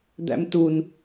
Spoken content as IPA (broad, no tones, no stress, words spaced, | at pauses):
d̪æ̰mtun